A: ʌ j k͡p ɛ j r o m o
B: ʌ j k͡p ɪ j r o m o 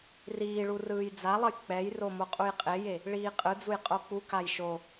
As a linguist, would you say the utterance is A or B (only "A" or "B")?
A